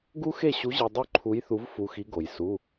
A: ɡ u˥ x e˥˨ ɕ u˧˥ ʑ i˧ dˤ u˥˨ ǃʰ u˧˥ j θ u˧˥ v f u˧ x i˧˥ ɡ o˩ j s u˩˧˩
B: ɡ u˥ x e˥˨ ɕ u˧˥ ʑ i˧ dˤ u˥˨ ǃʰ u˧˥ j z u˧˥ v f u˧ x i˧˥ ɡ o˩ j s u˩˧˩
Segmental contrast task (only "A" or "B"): A